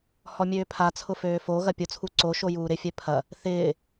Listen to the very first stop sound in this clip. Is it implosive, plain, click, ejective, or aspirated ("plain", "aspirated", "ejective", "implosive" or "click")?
aspirated